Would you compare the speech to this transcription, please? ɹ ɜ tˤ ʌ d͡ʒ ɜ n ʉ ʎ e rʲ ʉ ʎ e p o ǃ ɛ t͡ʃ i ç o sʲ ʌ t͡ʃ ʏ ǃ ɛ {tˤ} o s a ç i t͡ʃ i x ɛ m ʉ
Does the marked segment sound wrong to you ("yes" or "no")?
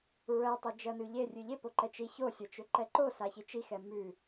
yes